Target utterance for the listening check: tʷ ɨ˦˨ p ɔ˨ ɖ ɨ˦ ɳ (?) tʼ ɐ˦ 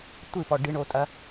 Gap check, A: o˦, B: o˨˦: A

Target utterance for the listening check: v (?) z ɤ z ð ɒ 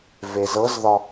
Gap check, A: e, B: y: A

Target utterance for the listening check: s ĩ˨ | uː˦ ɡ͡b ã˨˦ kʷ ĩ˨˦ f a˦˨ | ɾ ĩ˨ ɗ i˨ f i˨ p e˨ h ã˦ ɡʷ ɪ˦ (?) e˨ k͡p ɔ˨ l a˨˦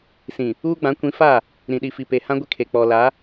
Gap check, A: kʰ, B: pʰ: A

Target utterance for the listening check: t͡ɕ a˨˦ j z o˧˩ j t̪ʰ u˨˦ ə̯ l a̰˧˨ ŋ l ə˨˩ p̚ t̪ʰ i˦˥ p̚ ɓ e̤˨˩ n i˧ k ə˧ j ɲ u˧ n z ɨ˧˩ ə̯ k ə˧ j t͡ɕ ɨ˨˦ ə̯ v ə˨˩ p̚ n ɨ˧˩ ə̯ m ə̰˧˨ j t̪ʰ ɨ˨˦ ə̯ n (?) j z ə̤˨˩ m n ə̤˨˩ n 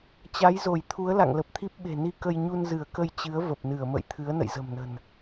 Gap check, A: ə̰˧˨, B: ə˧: A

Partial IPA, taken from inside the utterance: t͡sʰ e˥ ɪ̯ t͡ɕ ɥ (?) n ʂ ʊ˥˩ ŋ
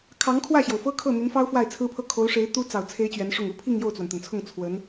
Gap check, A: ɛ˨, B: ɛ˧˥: B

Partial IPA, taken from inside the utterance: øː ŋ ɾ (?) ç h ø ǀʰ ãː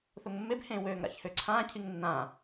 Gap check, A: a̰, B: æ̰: A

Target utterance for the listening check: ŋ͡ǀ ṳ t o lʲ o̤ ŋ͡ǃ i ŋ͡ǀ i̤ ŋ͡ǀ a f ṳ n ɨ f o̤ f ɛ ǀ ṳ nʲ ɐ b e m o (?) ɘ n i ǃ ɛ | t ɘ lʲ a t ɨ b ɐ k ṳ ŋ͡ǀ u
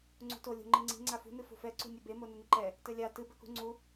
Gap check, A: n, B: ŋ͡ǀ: A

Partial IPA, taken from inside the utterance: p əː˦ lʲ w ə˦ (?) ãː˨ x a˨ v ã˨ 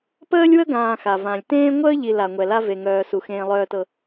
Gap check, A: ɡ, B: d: A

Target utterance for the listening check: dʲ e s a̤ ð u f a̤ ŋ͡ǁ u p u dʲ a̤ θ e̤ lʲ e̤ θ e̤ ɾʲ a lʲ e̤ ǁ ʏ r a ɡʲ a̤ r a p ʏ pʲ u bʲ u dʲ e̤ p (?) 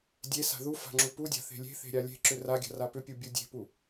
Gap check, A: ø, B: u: B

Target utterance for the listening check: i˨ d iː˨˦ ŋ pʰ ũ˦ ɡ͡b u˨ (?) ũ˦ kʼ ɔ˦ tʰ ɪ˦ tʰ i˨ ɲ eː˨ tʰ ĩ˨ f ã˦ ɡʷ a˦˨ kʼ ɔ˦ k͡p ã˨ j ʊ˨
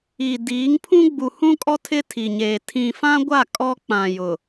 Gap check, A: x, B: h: B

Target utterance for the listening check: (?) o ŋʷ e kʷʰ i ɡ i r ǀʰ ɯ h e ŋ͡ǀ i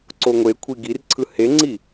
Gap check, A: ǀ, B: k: A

